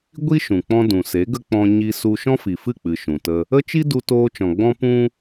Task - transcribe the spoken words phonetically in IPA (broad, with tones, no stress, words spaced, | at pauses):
ɡʷi˦ʃũ˨k͡pɔ̃˧ dũ˨se˨˦ɡə˦k͡pɔ̃˧ ɲi˧su˧ ʃɔ̃˦fi˨fɨ˦˨k͡pɨ˨ ʃũ˨tə˧ | ə˦ t͡ʃi˦ du˧toː˧t͡ʃɔ̃˨ɡ͡bɔ̃˦ pũ˦